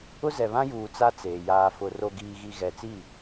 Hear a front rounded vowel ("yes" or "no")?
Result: no